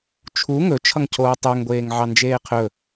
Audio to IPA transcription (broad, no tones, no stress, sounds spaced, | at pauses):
t͡ʃʰ u ŋ ɵ t͡ʃʰ ʌ ŋ cʰ oː tˤ œ ŋ ɡʷ eː ŋ ʕ ɑ n d͡ʒ eː qʰ ɵ